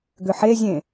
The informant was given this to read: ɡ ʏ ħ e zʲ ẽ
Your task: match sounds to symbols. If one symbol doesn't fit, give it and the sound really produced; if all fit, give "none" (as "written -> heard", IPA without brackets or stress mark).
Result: none